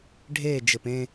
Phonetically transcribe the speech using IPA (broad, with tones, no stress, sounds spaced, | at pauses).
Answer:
ɖʱ eː˦˨ d͡ʒ ɘ˨ p ẽ˦